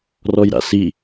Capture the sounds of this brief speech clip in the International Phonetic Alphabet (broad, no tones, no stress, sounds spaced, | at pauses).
r ɔ j ɾ a̰ s i